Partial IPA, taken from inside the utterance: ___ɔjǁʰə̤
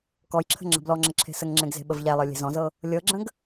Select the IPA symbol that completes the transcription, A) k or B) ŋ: A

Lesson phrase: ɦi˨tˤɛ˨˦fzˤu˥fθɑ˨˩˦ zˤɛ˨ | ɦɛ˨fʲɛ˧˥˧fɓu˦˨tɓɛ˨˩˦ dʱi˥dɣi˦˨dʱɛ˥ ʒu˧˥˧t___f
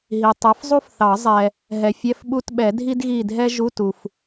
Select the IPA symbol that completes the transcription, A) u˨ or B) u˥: A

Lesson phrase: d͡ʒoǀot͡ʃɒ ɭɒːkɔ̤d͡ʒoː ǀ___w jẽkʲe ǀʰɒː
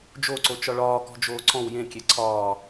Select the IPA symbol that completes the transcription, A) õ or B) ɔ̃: B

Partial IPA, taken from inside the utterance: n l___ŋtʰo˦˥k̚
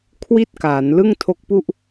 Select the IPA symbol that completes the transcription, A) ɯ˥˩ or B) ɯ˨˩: A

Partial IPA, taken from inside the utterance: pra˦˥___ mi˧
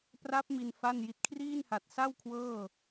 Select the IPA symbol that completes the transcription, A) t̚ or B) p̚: B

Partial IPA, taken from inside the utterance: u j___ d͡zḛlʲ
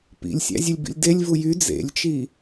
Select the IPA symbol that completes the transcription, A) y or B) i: A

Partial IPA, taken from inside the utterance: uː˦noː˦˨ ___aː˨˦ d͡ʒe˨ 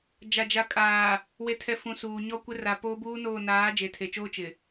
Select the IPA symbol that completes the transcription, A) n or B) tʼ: A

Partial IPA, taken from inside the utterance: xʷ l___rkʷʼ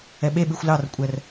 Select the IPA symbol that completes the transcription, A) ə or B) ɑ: B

